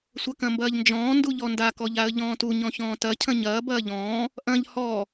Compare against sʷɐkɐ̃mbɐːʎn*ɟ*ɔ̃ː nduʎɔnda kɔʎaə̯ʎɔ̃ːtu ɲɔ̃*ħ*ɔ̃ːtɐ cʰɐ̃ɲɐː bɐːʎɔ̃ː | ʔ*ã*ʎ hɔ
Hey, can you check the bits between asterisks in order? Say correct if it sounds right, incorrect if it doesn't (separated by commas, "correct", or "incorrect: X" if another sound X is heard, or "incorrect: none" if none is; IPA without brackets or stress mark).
incorrect: d͡ʒ, incorrect: ç, incorrect: ɐ̃